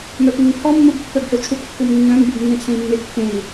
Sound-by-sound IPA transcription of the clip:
m œ p ŋ ɪ ŋ pʰ ɔ mː u b pː œ b h ɘ w t͡ʃʰ u p kː u m nː œ̃ m b u b nː ẽ t͡sʰ ẽ i̯ mː e kː ẽ i̯

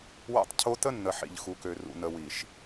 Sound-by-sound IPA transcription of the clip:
w a̰˦ tˤ cʰ o˦ t ə˦ nː ə˨ ħ ḭ˨ ʎ x u˨ k ø˨ r ṵ˨ n ə˨ w i˨ ʃ

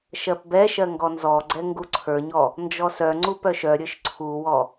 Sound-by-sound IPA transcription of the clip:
ʃ ɜ p b ɛ ʃ ɜ ŋ ɡ ɔ n z ɔ ɡ͡ǀ ɛ ŋ ɡ u ǀʰ ə˞ ɲ ɔ | n d͡ʒ ɔ s œ ŋ͡ǀ u p œ ʃ œ ɾʲ ə˞ ʃ ǀʰ u w ɔ

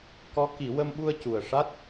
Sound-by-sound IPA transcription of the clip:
k ɔ˧˥ k i˨˩˦ w ə˧ m ɓ u˧ ə̯ c u˨˩ ə̯ ʂ a˦˥ t̚

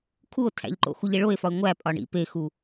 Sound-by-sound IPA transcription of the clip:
kʰ u o̯ tʰ æ̰ ʎ ǃ o̰ x u ʎ e ɭ o e̯ f ɒ e̯ ŋʷ æ pʼ ɒ ɳ ḭ p e x u

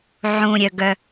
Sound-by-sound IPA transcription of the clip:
ʕ ũ ɾʲ œ ɡ œ

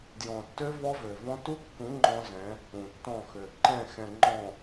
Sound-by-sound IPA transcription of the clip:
d j ɔ̃˨ tː ø˦ v ɔ˦ v ø˨ v ɔ̃˦ t u˦ kː ũ˨˦ ŋ͡ǃ ɔ̃˦ z ɛ̃˨˦ | ũ˨ tː ɔ̃˦˨ x ø˨ ǃ ɛ̃˦˨ x ɛ̃˨ ŋ͡ǃ ɔ̃˨

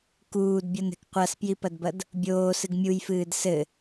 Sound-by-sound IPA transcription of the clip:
k uː d bʲ ɔ n ɛ̤ k qʷ a s p j i p ɐ d b ɐ d | bʲ oː s ɨ ɡ mʲ u j f ɨː d s ɘ

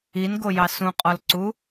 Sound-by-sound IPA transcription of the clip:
i n ɡ o j ɑ s ũ qʼ ɔ l ǀ u

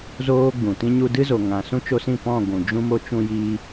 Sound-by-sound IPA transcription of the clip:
z oː˦ ɡ͡b ũ˨ t ĩ˧ ɲ u˧ d ɨ˦ z o˨ ŋ ã˨ s ũ˦ t͡ʃ o˧ s ĩ˦˨ p ɔ̃˦˨ ɡʷ ũ˨ d͡ʒ ũ˦ m o˧ t͡ʃ ũ˧ j iː˧

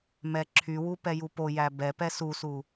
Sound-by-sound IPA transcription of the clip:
m ɛ ǁʰ y w u p ɛ j u p o j æ b ɛ p ɛ s u s u

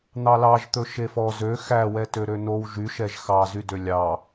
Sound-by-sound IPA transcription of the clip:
n̪ ɑ l ɑ ʒ t̪ ɵ ʃ e f ɔ z ø x æ w ɛ t ø ɾ ø n o w ʒ y ʃ ɛ ʒ x ɑ z y d ø lʲ ɑ

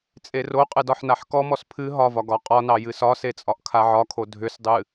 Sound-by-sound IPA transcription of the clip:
t͡sʼ e r o qʼ ɨ d ɒ ħ n a ħ k ɔ m ɔ s pʰ ɨ ɦ ɒ v ɒ ɡ ɒ qʼ ɒ n ɑ j ɨ s ɒ s e t͡sʼ ɒ ʔ kʰ a ʕ ɒ kʰ o dʱ ʏ s dˤ ɨ

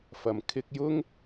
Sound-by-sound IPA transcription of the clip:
f ɐ˨ m kʰ ɪ˥ k̚ j ʊ˥ ŋ

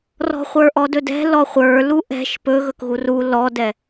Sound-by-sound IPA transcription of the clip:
r ɔ̤ χʷ ə˞ ʔ ɔ d ɵ d ɛ̤ l ɔ χʷ ə˞ l u ʔ ɛ̤ ʃ p ɵ ɣ ɵ k ɣ u r u l ɔ d ɛ

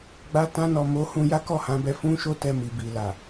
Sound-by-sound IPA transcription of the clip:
ɡ͡b a˧ t ã˧ n ɔ˨ m o˨˦ h ũ˧ j a˦ k ɔ˦˨ h ã˨˦ b ɛ˧ f ũ˦ ʃ o˦ t ɛ˦˨ m i˨ b i˨ l a˨

